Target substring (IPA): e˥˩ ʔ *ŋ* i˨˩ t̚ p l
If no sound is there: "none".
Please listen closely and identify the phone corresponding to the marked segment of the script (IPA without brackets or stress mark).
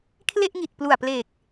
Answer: ŋ